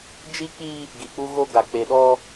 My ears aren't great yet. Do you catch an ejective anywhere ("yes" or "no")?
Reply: no